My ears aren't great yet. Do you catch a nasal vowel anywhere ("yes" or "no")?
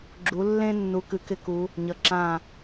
yes